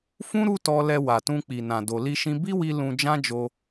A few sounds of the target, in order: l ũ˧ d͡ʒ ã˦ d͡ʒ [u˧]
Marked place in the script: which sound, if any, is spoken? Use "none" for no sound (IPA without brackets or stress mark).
o˧